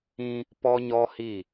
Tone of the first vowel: high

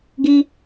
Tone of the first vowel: high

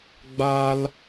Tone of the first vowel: high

